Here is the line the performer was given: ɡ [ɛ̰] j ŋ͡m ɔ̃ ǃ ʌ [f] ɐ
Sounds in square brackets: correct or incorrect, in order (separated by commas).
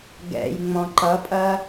correct, incorrect